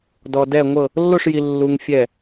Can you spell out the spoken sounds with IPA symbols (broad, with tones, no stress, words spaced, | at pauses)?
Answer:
dɔ˧dɛ˥˧ŋʷɤ˥˧ | lːo˥˧ʂji˧lːu˧ŋ fʲɛ˥˧